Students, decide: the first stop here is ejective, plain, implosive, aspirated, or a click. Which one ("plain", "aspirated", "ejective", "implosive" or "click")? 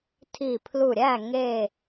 aspirated